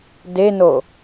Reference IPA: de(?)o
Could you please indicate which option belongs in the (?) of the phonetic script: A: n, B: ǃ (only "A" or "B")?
A